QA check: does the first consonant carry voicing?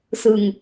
no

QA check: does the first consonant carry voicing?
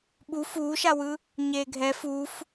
yes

